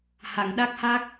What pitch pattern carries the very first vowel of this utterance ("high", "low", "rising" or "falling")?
low